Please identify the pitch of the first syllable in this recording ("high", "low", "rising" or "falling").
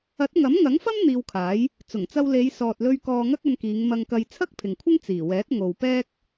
rising